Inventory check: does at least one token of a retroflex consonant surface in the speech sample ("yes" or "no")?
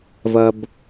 no